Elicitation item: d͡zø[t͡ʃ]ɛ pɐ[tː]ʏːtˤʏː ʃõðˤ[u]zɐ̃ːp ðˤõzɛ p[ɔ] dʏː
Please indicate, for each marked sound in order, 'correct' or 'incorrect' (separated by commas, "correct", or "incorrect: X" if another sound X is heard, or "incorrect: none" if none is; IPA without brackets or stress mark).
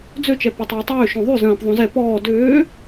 correct, incorrect: tˤ, incorrect: y, incorrect: ɔː